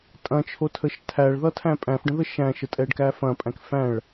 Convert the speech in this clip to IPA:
tʼ ɐ̃ t͡ʃʰ o tʰ ə ʃ tʰ æ ɭ ð ʌ tʰ æ̃ pʼ æ̃ f ɖ ə̃ ð ə ʃ æ̃ ʃ ə tʼ ɛ ɖ k æ f ɐ̃ pʼ æ̃ k f æ̃ ɭ

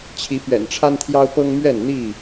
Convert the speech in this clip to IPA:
t͡ɕʰ i˨˦ p ɥ ɛ̰˨˩ n ʈ͡ʂʰ a˦ n t̪ʰ j ɑ˦ ʊ̯ p ɤ˦ ŋ m ɥ ɛ˥˨ n n̪ i˥˨

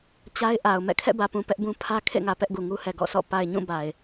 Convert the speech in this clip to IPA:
t͡ɕ a˦ ɪ̯ ʔ a˨ ʊ̯ m ɛ̰˦˨ kʰ ɛ̰˦˨ b ä˨ p ũ˨ p ɛ˦ ʔ b ũ˦ pʰ ä˦ kʰ ḛ˦˨ ŋ ä˨ p ɛ˦ ʔ ɡ u˨ ŋ u˦ h ɛ˨ ɡ ɔ̰˦˨ s ɔ̰˦˨ p a˨ ɪ̯ ɲ ũ˦˨ b a˨ ɪ̯

